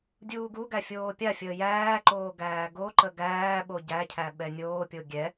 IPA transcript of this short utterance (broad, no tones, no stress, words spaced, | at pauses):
dʲuːɡuɡæ fʲoːpʲafʲəː jæːǃoː ɡæːɡoǃə ɡæːɓo ɟæcʰæ ɓɛnʲoːpʲo ɡʲɛ